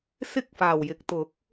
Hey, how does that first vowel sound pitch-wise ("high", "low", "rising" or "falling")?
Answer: high